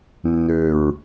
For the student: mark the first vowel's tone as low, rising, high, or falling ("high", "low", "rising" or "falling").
low